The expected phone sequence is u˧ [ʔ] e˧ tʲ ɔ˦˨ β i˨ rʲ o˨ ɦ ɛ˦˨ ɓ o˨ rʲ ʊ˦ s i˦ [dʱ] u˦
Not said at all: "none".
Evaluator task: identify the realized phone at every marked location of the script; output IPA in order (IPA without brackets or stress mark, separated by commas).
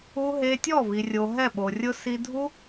ɦ, dʱ